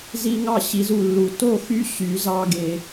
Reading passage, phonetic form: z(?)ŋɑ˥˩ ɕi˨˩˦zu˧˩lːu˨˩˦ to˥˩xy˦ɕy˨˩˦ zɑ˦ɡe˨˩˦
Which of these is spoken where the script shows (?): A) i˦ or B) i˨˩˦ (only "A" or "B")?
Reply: A